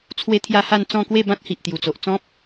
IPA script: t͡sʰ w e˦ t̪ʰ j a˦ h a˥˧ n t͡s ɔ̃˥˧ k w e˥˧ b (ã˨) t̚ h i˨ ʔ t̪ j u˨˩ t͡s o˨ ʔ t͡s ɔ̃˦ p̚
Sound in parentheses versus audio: incorrect: ã˦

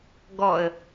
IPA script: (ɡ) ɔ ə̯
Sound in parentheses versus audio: correct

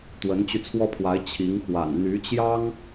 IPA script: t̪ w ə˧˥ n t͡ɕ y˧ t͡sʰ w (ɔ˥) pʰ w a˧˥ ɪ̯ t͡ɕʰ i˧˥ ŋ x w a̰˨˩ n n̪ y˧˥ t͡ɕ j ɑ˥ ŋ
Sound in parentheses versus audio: correct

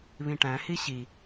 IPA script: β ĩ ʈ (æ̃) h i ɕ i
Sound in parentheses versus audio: correct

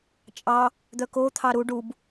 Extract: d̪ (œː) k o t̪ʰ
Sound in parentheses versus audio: incorrect: œ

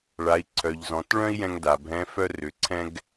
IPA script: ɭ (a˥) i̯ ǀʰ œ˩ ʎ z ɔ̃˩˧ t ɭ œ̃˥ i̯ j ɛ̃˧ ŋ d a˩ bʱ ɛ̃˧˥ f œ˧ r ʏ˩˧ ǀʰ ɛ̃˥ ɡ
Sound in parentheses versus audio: incorrect: a˩˧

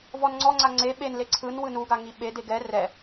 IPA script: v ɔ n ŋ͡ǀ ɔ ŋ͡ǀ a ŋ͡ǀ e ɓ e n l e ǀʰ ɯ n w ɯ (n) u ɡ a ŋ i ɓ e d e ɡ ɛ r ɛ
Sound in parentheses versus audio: correct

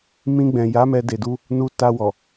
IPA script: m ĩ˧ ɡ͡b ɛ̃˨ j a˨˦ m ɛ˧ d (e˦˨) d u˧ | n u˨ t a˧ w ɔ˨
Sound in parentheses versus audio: incorrect: e˨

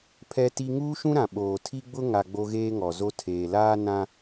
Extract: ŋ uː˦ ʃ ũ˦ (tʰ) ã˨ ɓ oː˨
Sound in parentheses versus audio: incorrect: ɾ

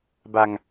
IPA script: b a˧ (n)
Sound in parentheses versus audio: incorrect: ŋ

